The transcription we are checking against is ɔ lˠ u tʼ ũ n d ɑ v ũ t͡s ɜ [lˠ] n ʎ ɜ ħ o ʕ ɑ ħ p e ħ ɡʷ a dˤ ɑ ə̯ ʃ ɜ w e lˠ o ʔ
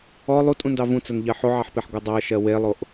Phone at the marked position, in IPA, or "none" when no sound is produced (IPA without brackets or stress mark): none